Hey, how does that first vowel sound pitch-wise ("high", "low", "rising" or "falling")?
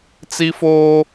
high